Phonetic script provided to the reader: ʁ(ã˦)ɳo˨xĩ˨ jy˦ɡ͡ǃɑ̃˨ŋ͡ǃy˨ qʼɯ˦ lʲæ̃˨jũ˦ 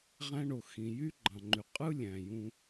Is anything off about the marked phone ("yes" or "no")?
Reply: yes